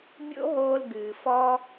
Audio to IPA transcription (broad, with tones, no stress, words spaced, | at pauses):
bʲo̰˦ɦoː˧l ɡɨː˨fɔ˦